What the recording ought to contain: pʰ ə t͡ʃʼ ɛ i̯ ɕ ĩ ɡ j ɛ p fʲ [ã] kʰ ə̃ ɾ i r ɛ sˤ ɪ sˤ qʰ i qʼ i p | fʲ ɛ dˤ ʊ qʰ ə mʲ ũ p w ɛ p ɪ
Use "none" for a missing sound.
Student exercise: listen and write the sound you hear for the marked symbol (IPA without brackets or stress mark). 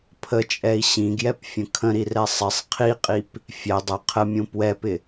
ə̃